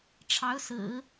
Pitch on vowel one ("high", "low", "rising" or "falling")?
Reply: rising